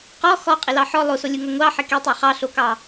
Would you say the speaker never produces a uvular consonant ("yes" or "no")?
no